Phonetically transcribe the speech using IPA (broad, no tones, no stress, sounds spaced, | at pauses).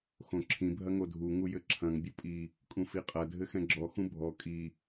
x õ ǁʰ ĩ bʱ ɐ ŋ o dʱ u ŋ u j ɘ ǁʰ ɐ̃ ŋ bʲ u pʼ i | kʼ ũ f i qʼ ɐ dʱ ɘ x ɛ̃ ɡ͡ǁ ɔ x ũ bʱ ɔ kʼ i